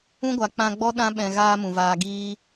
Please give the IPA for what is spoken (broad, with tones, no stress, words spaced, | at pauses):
ũ˦ɡʷa˨k͡pã˧ɡ͡bɔ˦ ɗã˦ ɓɛ̃˧ɣaː˦mũ˨vaː˧ ɡiː˦